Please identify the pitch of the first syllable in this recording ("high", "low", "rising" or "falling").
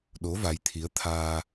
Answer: rising